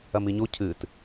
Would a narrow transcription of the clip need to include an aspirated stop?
yes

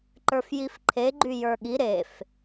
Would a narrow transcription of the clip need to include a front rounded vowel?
yes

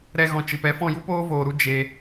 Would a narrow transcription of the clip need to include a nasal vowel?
yes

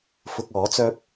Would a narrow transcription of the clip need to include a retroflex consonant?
no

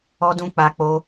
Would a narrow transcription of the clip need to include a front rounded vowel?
no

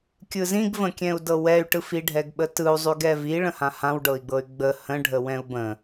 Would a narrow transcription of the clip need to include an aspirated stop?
no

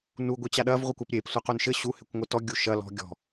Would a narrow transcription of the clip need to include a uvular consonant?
yes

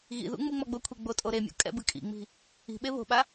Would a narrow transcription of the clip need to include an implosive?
yes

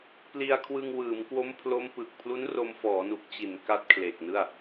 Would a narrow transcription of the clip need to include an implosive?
no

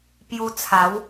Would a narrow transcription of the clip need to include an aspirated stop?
yes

